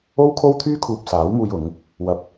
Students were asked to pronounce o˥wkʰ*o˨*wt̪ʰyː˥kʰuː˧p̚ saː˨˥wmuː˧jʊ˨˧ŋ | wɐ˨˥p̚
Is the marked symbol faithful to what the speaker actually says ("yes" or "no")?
no